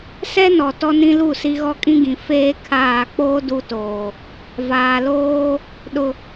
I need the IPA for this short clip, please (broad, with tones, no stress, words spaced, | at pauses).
sɛ˦nɔ˨ tɔ˦nĩ˦lu˦˨ si˦ɣɔ˦kʼĩ˦ɡĩ˨ feː˦ kʰaː˦˨ k͡poː˦ du˦ toː˨ | vaː˨loː˦ | ɗʊ˨